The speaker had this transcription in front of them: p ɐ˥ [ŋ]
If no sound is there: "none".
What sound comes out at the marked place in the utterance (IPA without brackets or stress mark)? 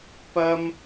m